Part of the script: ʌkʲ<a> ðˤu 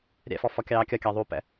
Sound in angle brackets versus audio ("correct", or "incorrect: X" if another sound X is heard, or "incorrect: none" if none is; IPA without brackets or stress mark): incorrect: ɑ